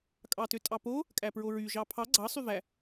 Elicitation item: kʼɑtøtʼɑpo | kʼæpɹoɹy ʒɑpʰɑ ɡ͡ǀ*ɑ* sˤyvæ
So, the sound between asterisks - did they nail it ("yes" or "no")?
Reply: yes